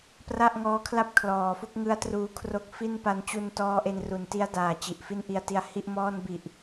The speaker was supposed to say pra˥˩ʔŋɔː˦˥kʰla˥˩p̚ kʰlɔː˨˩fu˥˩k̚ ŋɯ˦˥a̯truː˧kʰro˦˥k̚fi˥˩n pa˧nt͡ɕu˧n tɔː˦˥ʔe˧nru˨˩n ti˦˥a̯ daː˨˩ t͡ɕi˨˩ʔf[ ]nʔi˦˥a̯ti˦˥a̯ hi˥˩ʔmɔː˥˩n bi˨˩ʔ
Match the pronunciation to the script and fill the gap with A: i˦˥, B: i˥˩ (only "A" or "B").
B